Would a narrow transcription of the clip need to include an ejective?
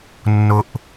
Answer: no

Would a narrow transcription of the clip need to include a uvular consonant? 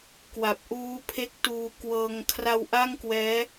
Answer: no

